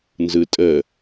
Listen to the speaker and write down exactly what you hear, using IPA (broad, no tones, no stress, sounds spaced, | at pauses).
n z ɯ tʼ ə